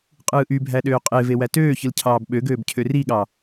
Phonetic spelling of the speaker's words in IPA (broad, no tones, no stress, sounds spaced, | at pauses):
qʼ ɯː ʔ y bʱ æ ɗ øː qʼ e v e w æ t øː ç ɯ l cʰ ɑː b ɓ ø ɡ øː b cʰ ø r i ɠ ɑ